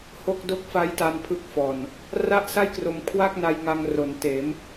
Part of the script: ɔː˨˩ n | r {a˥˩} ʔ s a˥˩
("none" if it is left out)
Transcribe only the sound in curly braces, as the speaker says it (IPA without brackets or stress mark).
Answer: a˥˩